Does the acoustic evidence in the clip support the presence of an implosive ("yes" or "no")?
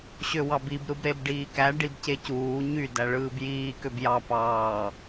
no